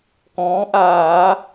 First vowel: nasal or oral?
nasal